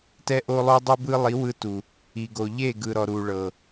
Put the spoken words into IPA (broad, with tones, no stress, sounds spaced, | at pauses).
t ɛ˧ ʔ o˧ lˠ o˦ dˤ u˦ b ɯ˦ lˠ i˨˦ w ɯ˧ t u˨ | i˨ ɡ o˨ ʎ e˦˨ ɡ ɯ˨ ɾ ɔ˨ ɾ u˨ ɭ ɤ˨